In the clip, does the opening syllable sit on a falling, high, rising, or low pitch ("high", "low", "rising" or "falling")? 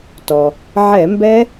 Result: low